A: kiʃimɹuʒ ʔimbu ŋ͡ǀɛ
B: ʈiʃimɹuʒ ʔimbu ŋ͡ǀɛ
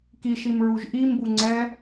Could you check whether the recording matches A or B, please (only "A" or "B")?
A